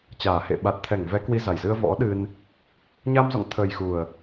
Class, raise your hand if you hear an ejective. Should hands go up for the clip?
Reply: no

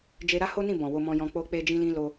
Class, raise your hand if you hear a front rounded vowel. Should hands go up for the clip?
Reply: no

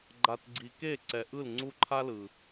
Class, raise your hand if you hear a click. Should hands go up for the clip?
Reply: yes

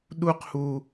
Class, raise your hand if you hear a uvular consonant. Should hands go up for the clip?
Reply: yes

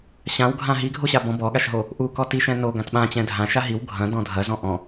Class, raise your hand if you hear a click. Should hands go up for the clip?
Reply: no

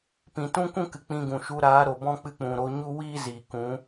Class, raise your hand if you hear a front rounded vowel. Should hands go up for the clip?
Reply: no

